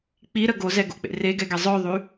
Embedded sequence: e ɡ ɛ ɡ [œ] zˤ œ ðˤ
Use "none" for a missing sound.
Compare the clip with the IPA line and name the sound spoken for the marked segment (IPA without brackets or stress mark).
ɛ